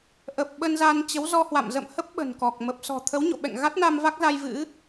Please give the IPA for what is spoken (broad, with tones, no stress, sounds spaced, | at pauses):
ʔ ə˨˩ p̚ ɓ ə˧ n z a˧ n t͡ɕ ə˨˦ w z ɔ˧ h w a̰˧˨ m z ə̰˧˨ m h ə˦˥ p̚ ɓ ə̤˨˩ n k ɔ˨˩ k̚ m ə˨˩ p̚ s ɔ̤˨˩ t̪ʰ ə˨˦ w ɲ o̰˧˨ ɓ ɛ̰˧˨ ŋ ɣ a˦˥ t̚ n a˧ m v a˦˥ k̚ z a˧ j v ɨ̰˧˥